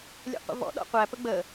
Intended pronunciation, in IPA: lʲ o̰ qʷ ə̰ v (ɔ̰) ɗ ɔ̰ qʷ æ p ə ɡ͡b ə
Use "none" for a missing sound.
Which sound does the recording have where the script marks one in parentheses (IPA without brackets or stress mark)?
ɔ̰